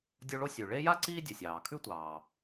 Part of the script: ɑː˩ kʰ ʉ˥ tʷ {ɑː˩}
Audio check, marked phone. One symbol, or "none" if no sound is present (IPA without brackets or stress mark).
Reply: ɑː˩